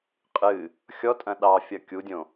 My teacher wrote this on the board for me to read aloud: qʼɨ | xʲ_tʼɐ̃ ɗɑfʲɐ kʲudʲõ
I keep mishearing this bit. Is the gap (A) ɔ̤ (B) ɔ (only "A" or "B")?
B